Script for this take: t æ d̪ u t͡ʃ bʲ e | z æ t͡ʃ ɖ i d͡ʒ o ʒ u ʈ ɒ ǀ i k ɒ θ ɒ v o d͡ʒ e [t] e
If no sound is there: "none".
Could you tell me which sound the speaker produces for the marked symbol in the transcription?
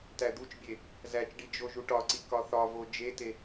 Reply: t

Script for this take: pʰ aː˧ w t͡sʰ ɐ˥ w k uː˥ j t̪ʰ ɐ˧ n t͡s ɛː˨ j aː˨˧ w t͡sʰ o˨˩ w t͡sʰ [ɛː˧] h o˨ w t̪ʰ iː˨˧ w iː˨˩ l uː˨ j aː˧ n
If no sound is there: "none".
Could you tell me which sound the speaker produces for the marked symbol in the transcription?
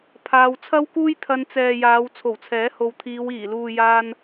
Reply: ɛː˨˥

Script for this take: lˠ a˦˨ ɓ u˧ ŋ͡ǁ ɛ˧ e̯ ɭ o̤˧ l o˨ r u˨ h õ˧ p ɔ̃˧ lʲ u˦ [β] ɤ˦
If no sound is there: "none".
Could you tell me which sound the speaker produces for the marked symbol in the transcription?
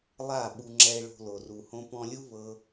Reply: β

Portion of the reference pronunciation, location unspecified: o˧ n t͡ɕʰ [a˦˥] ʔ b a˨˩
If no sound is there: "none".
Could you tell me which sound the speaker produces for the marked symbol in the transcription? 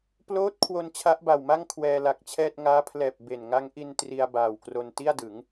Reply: a˦˥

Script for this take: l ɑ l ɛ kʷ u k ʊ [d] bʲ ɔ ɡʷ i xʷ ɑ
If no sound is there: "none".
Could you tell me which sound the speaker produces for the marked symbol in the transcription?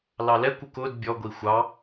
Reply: d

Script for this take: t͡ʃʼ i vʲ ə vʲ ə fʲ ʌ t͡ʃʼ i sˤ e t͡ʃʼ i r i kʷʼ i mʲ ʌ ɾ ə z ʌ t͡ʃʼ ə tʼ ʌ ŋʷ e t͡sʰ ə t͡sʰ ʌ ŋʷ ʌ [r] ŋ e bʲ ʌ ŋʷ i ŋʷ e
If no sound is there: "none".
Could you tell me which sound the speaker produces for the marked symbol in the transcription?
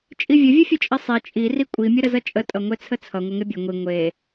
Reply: none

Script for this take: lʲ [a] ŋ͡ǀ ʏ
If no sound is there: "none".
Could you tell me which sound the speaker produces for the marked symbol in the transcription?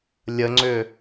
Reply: ə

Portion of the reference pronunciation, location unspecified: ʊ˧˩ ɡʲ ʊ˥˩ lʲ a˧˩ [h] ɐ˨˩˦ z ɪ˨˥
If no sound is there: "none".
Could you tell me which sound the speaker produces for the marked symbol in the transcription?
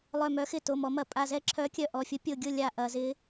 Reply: ʔ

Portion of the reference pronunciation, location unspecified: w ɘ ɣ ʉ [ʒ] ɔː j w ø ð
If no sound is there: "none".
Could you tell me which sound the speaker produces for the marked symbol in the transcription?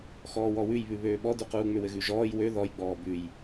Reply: ʒ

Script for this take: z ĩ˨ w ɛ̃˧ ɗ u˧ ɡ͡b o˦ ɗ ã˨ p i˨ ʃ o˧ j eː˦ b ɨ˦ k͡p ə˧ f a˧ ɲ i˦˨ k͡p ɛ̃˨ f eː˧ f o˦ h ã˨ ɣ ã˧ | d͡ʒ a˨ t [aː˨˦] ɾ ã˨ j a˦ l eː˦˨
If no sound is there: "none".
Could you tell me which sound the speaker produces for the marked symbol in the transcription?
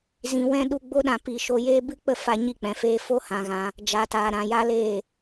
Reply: aː˨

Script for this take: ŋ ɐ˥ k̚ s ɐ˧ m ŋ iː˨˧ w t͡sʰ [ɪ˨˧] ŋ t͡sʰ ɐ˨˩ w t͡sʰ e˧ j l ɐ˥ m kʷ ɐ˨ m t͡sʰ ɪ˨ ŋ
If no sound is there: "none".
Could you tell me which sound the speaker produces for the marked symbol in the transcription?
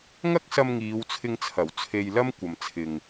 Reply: ɪ˧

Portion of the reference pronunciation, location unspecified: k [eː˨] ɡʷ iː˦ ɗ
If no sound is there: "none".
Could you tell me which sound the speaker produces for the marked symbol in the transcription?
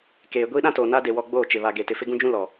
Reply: eː˨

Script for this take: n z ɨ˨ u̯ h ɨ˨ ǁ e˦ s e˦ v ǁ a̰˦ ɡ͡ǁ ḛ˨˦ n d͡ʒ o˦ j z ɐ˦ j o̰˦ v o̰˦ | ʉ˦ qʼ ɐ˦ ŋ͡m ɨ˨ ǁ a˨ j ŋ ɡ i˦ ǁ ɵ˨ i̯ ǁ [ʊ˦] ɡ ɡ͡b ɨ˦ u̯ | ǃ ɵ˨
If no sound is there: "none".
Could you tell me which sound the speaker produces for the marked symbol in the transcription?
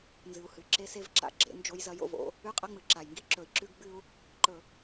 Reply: ʉ˦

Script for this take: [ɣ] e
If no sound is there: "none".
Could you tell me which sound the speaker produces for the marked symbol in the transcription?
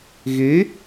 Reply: ɣ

